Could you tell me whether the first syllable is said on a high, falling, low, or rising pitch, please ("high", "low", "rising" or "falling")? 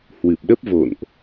low